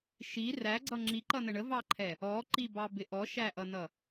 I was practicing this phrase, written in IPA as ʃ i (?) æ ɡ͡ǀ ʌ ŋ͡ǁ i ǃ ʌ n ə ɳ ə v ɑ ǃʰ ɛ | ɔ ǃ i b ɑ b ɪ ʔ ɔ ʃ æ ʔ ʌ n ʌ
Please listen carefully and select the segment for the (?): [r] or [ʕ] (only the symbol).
r